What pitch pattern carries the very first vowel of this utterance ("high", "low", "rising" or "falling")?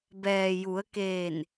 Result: low